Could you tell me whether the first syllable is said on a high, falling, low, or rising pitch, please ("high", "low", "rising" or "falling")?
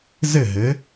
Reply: falling